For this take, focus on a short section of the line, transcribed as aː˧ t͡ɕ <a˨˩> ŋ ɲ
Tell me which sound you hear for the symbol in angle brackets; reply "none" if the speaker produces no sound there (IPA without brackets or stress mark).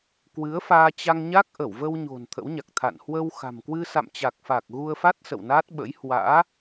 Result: a˧